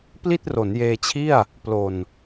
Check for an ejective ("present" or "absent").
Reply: absent